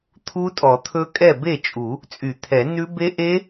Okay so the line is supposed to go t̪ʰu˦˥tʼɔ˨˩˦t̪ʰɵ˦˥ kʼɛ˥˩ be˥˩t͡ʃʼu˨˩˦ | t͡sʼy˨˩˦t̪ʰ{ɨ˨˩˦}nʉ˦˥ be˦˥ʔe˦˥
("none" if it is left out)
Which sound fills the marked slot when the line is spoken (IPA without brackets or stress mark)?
ɛ˨˩˦